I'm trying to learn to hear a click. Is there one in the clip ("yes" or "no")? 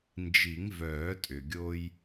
no